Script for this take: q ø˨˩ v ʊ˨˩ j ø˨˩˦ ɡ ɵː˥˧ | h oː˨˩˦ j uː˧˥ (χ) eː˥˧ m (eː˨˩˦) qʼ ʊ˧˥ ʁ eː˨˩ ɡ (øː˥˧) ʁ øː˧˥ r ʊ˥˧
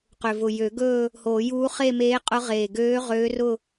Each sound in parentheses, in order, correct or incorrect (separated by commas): correct, incorrect, incorrect